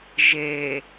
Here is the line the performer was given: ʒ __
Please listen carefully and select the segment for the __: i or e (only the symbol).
e